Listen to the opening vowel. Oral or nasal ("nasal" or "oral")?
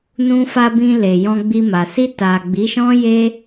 nasal